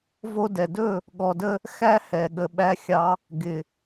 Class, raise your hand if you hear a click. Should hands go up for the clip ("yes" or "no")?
no